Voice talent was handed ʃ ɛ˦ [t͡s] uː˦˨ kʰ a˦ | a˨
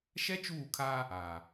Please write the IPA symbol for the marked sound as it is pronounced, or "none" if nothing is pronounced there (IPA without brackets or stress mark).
t͡ʃ